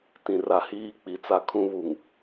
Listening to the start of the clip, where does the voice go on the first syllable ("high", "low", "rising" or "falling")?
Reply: low